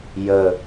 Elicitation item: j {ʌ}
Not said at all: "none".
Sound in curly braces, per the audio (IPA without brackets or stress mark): ə